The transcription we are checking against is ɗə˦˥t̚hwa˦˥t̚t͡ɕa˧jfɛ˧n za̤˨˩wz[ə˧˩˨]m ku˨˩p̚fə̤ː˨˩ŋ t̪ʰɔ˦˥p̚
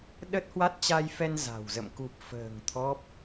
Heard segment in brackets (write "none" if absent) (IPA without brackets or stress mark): ə̰˧˨